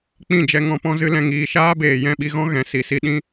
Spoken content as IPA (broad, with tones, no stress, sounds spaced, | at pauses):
k͡p ĩ˦˨ d͡ʒ ɛ˧ ŋ ɔ̃˧ p ɔ̃˦ z ɨ˧ l ɛ̃˨ ŋ iː˨ ʃ aː˦ b eː˨ j ɛ̃˦˨ ɓ i˧ ɣ ɔ̃˧ ɣ ɛ̃˨ s i˨ s i˧ ɗ ĩ˦